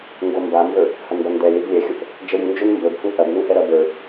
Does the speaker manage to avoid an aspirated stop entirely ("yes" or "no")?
yes